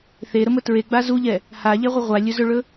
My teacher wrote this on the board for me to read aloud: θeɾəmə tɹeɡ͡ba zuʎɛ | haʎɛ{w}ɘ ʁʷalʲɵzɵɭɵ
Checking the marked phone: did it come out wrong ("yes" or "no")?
yes